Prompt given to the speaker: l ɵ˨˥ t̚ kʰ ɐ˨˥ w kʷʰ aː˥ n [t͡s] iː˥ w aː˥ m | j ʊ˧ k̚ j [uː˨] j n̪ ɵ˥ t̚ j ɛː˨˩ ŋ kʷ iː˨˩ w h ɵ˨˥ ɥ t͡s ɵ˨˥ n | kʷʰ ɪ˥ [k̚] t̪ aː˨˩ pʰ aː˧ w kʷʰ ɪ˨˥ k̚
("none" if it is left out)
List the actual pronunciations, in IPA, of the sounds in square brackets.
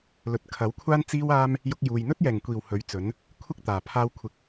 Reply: t͡s, uː˨, k̚

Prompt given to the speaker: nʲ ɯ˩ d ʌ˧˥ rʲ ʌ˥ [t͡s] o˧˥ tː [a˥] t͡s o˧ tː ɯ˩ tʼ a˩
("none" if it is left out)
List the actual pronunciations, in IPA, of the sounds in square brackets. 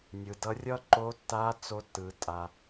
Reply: ǃ, a˧˥

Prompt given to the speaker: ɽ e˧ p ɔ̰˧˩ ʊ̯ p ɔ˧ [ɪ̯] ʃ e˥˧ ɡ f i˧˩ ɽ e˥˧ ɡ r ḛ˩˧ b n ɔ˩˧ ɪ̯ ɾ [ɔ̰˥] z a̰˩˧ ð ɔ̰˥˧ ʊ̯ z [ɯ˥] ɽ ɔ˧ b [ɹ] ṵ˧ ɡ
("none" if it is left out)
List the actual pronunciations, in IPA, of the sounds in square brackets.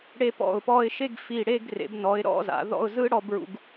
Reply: ɪ̯, ɔ̰˥˧, ɯ˥, ɹ

